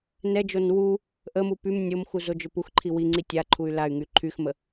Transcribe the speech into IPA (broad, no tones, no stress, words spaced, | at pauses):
nɛd͡ʒon wu | ʔəmu pym nʲomxu zod͡ʒøpuxǃʰi wiŋ͡ǀi tʲa ǃʰuy̯lay̯ŋy ǃʰyxmə